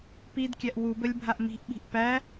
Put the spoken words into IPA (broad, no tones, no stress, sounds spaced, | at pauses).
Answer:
p i d kʲ æ ʔ w u b ə lʲ bʱ a ʔ m i̤ ʔ ɓ i̤ ʔ p æ